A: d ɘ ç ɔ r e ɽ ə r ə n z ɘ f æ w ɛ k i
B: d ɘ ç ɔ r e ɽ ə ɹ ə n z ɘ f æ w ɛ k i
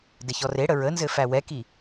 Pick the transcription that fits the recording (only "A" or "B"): B